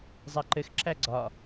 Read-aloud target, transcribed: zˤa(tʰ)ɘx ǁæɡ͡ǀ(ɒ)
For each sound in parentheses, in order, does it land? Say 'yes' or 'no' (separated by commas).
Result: no, yes